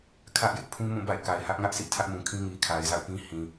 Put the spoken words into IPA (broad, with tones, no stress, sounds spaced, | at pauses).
kʰ ä˦ ʔ j ɪ˦ ʔ pʰ ũ˦ m ũ˦˨ b a̰˦˨ ɪ̯ k a˨ ɪ̯ h ä˦ ʔ ŋ ä˦ ʔ sʰ ḭ˦˨ tʰ ä˦ ʔ m ũ˨ kʰ ĩ˦ ŋ i˨ kʰ a˨ ɪ̯ z a̰˦˨ ʊ̯ p ĩ˦ h ĩ˨